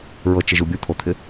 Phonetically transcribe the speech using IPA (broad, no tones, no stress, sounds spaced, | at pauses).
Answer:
ɹ ɤ t͡ʃ ɪ ʒ u bʲ u t̪ʰ o t̪ʰ ɪ